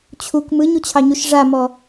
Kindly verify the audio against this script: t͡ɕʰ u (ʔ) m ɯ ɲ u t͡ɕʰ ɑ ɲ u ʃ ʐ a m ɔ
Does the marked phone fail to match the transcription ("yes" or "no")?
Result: yes